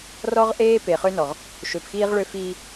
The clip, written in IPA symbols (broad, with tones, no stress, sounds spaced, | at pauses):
r ɔ˦ ʁ ʔ eː˦ p e˨ χ ø˦ n ɔ˨ ʁ | ʃ ø˨ p x iː˦ ʁ ɭ ø˦ f iː˦